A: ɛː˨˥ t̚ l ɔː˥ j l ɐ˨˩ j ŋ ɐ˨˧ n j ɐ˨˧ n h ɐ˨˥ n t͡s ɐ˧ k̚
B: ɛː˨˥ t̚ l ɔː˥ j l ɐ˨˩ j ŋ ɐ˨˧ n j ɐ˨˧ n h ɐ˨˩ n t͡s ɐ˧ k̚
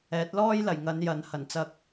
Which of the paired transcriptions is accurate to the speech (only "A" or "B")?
B